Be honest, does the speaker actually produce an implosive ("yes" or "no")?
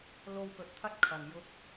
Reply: no